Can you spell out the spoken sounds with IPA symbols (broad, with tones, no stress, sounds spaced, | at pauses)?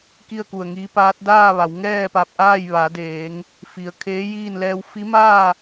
k i˥˨ ə̯ k u˧˩ ə̯ ŋ iː˧˥ p aː˧˥ t̚ d aː˥˨ ʋ a˩˧ w ŋ ɛː˥˨ p a˧ p̚ ʔ aː˥˨ j ʋ a˩˧ d eː˩˧ ŋ | f i˩ ə̯ kʰ eː˧˥ j iː˥˨ n l ɛː˧ w f i˧˥ m aː˥˨